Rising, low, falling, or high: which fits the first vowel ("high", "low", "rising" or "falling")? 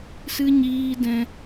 high